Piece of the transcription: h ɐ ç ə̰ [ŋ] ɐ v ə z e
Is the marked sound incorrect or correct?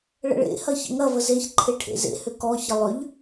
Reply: correct